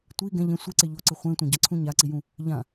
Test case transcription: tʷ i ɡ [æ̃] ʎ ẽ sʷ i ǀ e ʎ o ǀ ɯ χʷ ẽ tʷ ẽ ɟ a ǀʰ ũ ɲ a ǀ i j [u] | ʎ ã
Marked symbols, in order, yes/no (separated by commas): no, no